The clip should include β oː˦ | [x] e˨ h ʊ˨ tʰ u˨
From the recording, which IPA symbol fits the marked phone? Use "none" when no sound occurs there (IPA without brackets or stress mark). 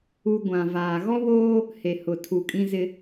h